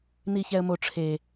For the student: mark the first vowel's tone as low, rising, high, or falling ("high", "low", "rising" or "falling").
low